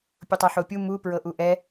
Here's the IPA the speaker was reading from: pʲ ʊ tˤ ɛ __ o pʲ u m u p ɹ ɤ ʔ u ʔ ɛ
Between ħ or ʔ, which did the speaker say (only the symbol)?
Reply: ħ